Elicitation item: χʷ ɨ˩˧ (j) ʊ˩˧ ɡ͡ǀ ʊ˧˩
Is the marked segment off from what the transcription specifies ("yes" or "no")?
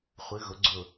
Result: yes